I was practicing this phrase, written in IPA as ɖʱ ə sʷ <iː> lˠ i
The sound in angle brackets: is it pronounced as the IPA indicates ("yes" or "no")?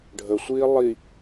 yes